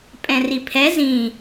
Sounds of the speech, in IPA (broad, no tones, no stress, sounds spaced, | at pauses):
pʼ ɛ̃ r i pʰ ɛ z ĩ